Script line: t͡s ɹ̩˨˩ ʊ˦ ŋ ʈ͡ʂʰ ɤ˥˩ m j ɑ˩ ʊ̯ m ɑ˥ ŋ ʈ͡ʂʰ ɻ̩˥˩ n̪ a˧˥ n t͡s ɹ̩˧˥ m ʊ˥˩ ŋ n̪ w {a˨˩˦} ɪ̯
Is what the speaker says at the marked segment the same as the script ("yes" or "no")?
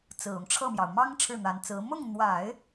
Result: yes